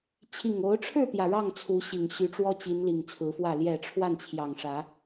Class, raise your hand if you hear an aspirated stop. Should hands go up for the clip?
yes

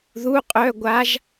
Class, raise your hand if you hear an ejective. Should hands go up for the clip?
yes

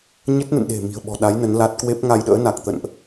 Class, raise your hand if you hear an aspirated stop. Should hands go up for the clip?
no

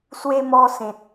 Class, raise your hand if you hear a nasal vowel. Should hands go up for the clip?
yes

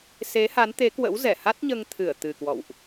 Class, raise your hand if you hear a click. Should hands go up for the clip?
no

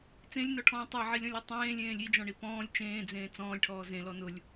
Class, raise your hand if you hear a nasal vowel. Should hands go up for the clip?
yes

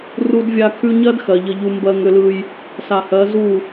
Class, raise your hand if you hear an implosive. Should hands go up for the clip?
no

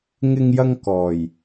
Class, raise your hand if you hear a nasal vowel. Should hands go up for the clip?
no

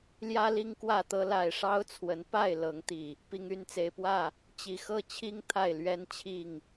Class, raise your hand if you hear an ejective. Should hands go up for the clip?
no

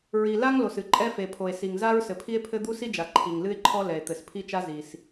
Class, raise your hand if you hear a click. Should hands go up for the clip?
yes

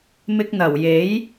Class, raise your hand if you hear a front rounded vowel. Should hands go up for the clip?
no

